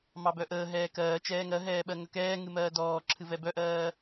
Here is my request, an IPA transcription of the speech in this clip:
m ɑ b œ ʔ əː ɦ ɛː k ɜː t͡ʃ ɛː ŋ ɜ ɦ ɛː ɓ ɜ ŋ ə k ɛː ŋ ɨ m ɜː d ɔː ǁʰ ɨ v ɛ b œ ʔ ɜː

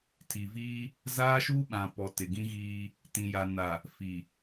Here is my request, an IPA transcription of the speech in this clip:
tʰ i˨ v iː˦ | z aː˦ ʃ uː˦ ɓ ã˨ p ɔ˨ t ɪ˨ ɡ ĩ˦ ɣ iː˦ | t ĩ˨ j a˨ n a˨ | f i˨

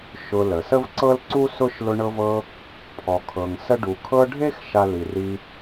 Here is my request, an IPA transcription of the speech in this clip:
ʃ ʊ˦ l ə˩ s ə˥ v ǀ ɤ˥ l ǀ u˥ s ʊ˥ ʃ l ʊ˦ ɳ ɤ˦ v ɤ˦ | pʰ ɔ˨ kʰ ɤ˨ ŋ s ə˥ ɖ u˨ kʰ ɤ˦ ɖʱ e˥ x ʃ a˥ l i˨ r i˦

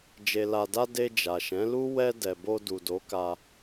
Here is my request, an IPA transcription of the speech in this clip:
d͡ʒ e˨ l a˨ d a˧ d e˧ d͡ʒ a˨ ʃ ɛ̃˨˦ l u˦ w ɛ˧ d ɛ˨ b o˧ d u˨ d o˨˦ k a˧

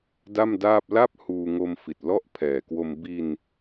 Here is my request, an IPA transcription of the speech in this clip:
d a˥˩ m d aː˥˩ p̚ l a˥˩ p̚ h uː˧ ŋ o˧ m f i˨˩ t̚ l ɔ˥˩ ʔ pʰ ɛː˨˩ k w o˧ m b i˧ n

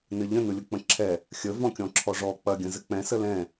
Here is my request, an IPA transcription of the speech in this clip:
n ɘ ʎ ə̃ n ʊ lʲ ʊ k͡p ə̃ ǁʰ ɛ | xʲ ə v ɔ̃ kʲ ɔ̃ ǁʰ ɔ ʐ ɔ k͡p ɐ ɡʲ ə̃ z ɘ k͡p ɛ̃ s ə l ɛ̃

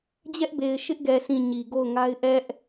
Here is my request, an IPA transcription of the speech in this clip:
d͡ʑ ɛ˦ ʔ b e˨ ɪ̯ ʃ ɪ˦ ʔ ɡ ɛ˨ sʰ ĩ˨ ɲ i˨ ɡ o˦˨ ʊ̯ ŋ a˦ ɪ̯ ʔ ɛ˦ ʔ

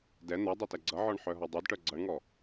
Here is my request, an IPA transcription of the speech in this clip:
d ɛ n̪ ɜ dˤ e t ɛ ɡ͡ǀ ʌ ʕ ɔ ɳ ħ œ ɦ ɔ dˤ o d ʈ œ ɡ͡ǀ ʌ ɳ ŋ ɔ

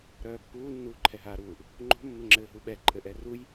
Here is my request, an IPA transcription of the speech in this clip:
ɾ œː pː uː nː uː ǃʰ ɛ ɦ aː ɾ uː ʔ | ŋ͡ǃ o̤ mː ɘ ŋ͡ǁ ɘː ɦ u ɓ ɛ ǃʼ ɘ ʔ ɛ r u j

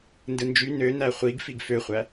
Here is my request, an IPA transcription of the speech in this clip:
n d ɯ n d͡ʒ y n ø n æ χʷ i ɡ f i ɡ f ø χʷ æ

